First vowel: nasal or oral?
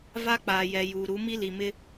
oral